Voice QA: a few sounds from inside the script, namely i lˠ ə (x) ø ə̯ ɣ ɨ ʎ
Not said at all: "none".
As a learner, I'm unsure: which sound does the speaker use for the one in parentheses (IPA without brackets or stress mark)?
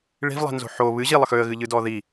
x